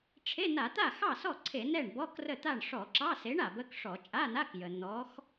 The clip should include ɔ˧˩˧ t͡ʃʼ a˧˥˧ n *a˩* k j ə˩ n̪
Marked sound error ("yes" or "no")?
yes